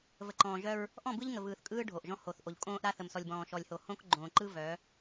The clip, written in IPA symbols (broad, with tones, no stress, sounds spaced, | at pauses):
v ə˨ ǃ ɔ̃ː˨ ʒ œ˦ ɹ | ʔ ɔ̃˦˨ b ɯ˦ ʎ ŋ ə˨ v ɯː˨ θ kʼ ɯː˦ ɖʱ o˨ ʔ ʒ ɔ̃˦ h o˨ θ ʔ o˨ ʎ kʼ õː˦ ʔ ɾ a˦ θ ə˨ m s ɔ˨ lʲ b ɔ̃ː˨ ʃ ɔ˨ lʲ h o˨ h õ˦ k ɡ͡ǃ õː˨ ǃ ɯ˦ v œ˨˦